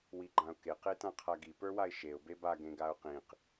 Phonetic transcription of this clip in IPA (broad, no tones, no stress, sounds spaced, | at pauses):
w i ɡ͡ǃ ã ʊ̯ k e q e t ã qʰ a ɡ i p ə˞ w a ɪ̯ ʃ e ʊ̯ b e b a ɡ ẽ ɡ a ʊ̯ q ĩ q